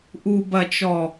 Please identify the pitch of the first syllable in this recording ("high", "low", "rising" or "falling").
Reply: low